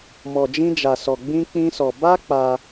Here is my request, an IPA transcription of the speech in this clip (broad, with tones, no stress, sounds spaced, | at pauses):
m ɔ˧ d͡ʒ ĩ˦ d͡ʒ a˧ s ɔ˧ ɡ͡b ĩ˦ k͡p ĩ˦ s ɔ˧ b a˦ k͡p a˧